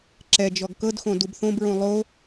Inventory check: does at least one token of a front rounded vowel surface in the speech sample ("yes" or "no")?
no